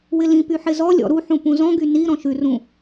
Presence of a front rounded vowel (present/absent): present